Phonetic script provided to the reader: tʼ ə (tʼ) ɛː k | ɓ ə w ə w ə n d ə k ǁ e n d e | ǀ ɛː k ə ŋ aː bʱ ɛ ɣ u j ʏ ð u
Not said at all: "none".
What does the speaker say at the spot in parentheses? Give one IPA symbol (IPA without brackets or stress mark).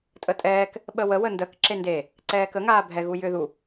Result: tʼ